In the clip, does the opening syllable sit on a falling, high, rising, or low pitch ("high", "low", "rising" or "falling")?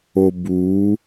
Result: low